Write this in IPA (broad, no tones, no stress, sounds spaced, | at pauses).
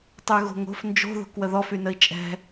tˤ y ɣ o̤ ŋ o̤ f n d͡ʒ o̤ ð o̤ k w ə ð ɔ f y n ə i̯ t͡ʃʼ ɛ̤